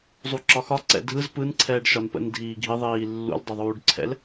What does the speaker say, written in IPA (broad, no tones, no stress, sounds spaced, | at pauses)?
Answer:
zˤ u ǁ ɒ x ɒ ǀ ɛ̰ dʱ ɯ z p ɯ n ǀʰ ɛː ɖ ʃ ɒ n p ə̰ n dʱ iː ɡʱ i ðˤ iː lː ṵ l dˤ ə ðˤ uː ɖ ǀʰ ɛ̰ l